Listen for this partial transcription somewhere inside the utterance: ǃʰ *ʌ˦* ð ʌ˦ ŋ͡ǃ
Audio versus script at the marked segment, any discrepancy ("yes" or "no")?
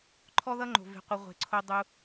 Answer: yes